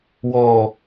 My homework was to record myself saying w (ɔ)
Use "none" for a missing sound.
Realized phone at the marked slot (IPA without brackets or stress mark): ɔ